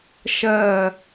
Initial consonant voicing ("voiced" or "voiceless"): voiceless